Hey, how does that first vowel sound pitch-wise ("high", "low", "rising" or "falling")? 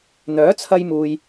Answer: rising